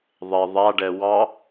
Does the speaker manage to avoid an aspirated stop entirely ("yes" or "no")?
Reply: yes